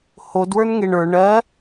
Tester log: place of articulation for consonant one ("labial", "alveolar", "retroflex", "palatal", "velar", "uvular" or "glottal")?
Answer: glottal